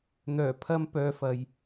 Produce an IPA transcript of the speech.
n̪ œː˨˩ pʰ ɐ˥ m p œː˧ f ɐ˨ j

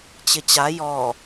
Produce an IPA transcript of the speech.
t͡ɕ ɪ t͡ɕ a j ɔ

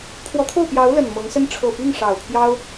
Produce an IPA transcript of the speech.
pʰ w ɔ˧˥ t̪ʰ o˥˩ ʊ̯ p j ɑ˧˥ ʊ̯ l ə˨˩ n m ɤ˧˥ ŋ s ə˥ n ʈ͡ʂʰ ɤ˨˩ p i˥˩ ŋ ʂ ɑ˨˩ ʊ̯ pʰ j ɑ˥ ʊ̯

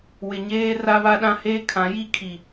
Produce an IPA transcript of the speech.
w ɪ˨ ɲ eː˦ r a˦ β a˦ ɗ ã˦ h eː˦ kʰ ã˨˦ j i˦ kʰ i˨

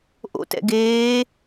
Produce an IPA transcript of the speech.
ʔ o̰ t ɛ̰ ɡ eː

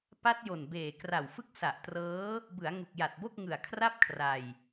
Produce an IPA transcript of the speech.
p a˦˥ t̚ j o˨˩ n b eː˨˩ k r a˨˩ w f ɯ˥˩ k̚ s a˨˩ ʔ t r ɤː˦˥ | b ɯ˩˦ a̯ ŋ u˨˩ k̚ j a˨˩ t̚ b o˥˩ k̚ ŋ ɯ˨˩ a̯ kʰ r a˥˩ p̚ kʰ r a˧ j

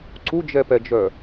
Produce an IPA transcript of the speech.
ǀ u d͡ʒ ɛ p ɛ d͡ʒ œ

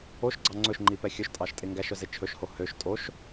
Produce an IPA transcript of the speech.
o ʃ ɡ͡ǀ ɑ ŋ͡ǀ ɵ ʃ ŋ͡ǃ i p ɛ xʲ ɵ ʃ tʼ ɑ ʃ tʼ e ŋ ɡ æ ʃ œ z e t͡ʃʰ ɵ ʃ h o h ø ʃ tʼ o ʃ

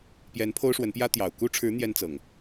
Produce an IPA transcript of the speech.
p j ɛ˨˦ n pʰ o˦ ʊ̯ ʂ w ə˨˦ n p j ä˦ t̪ j ɑ˨˩ ʊ̯ k u˦ ʈ͡ʂʰ ɻ̩˨˦ n̪ j ɛ˦ n t͡s ɤ˨˩ ŋ

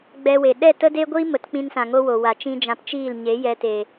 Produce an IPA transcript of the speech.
ɡ͡b ɛ˧ w e˨ ɗ ɛ˦˨ t ə˦ d e˦ ɡʷ iː˦ m ə˨˦ t k͡p ĩ˧ n s ã˨ ŋ o˦ w o˨ w a˨ t͡ʃ ĩ˦ d͡ʒ ã˧ p t͡ʃ iː˦˨ l ɲ e˨˦ j ɛ˧ t e˨

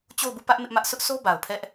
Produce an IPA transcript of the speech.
t͡ɕ o˦˨ ʊ̯ b u˦˨ p ä˦ ʔ m ɪ˦ ʔ m ä˦ ʔ sʰ ʊ˦ ʔ s o˦ b a˨ ʊ̯ pʰ ɛ˦ ʔ

